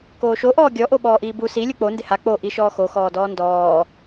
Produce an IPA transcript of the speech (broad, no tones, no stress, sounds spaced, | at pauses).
k oː ʃ o ʔ ɔː ɡʲ ɔ ʔ o ɓ ɔː ʔ iː b u s i lʲ u k͡p o n d ɪ h a k͡p o ʔ i ʃ ɔː x o x ɔː d ɔː n d ɔː